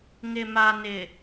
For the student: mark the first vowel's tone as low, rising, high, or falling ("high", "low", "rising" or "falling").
low